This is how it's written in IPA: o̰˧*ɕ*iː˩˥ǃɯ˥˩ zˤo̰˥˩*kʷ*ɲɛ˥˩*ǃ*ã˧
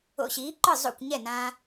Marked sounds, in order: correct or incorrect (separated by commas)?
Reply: correct, correct, incorrect